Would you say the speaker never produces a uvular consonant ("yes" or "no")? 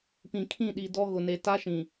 yes